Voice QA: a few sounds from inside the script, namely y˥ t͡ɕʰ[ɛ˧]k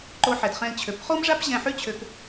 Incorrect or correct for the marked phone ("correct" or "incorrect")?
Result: incorrect